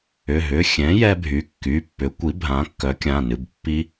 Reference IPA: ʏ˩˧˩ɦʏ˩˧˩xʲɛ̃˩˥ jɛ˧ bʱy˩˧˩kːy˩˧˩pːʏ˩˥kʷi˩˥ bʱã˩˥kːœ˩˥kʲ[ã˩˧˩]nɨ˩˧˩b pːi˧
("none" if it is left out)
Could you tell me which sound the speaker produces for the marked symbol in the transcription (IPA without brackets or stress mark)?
ã˩˧˩